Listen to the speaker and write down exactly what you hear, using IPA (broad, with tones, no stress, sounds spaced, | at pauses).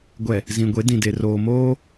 ɡʷ ɛ˨ | z ĩ˨ ɡʷ e˨˦ d ĩ˨ d e˨ r oː˨ m oː˦